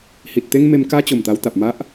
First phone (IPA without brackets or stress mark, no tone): h